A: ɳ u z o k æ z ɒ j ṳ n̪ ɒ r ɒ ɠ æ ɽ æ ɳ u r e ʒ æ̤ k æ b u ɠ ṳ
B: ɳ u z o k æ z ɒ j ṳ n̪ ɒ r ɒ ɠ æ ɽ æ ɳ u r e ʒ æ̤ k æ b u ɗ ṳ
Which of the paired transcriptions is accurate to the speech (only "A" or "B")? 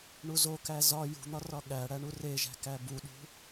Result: B